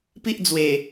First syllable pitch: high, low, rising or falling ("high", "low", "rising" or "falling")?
high